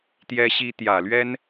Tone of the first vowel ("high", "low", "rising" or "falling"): high